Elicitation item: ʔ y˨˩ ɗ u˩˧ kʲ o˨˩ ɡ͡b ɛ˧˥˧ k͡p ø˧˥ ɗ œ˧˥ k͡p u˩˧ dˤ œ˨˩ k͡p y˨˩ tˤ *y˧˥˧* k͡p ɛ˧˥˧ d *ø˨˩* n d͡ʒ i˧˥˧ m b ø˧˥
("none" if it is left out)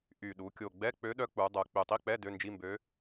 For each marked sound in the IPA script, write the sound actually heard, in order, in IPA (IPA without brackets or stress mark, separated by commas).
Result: i˧˥˧, ø˧˥˧